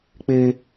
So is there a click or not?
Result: no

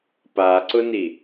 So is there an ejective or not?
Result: no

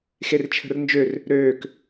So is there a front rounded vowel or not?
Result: yes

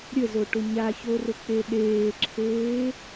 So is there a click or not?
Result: yes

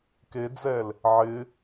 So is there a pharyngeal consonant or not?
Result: yes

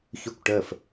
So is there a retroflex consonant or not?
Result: yes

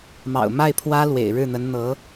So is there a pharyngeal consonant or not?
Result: no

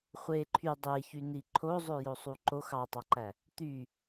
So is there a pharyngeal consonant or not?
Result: no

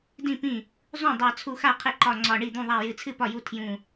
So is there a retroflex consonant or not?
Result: yes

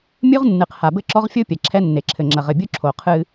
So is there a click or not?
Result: yes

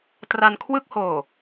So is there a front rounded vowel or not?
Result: no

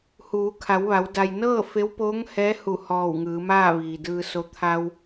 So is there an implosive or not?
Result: no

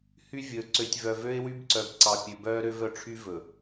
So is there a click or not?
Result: yes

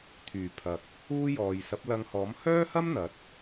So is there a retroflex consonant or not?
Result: no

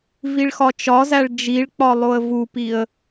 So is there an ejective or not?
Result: no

